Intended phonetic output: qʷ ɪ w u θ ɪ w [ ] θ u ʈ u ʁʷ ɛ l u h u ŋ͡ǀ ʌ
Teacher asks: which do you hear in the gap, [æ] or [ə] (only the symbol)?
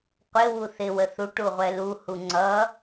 ə